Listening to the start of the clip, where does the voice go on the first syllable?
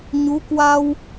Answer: rising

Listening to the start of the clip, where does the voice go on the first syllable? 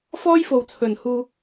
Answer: high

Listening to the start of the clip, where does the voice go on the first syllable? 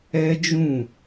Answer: high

